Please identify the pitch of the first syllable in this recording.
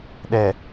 low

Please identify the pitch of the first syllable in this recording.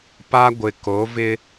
high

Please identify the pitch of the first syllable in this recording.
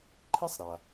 high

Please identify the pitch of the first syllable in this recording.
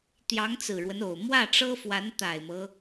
rising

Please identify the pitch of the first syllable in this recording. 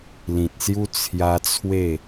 low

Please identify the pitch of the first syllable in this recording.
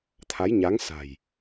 rising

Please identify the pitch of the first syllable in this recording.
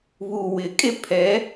low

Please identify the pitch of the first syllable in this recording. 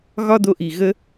high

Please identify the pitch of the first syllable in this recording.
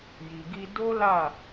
low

